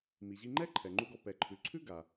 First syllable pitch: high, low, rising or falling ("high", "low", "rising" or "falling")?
low